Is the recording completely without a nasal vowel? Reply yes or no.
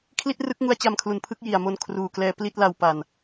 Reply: yes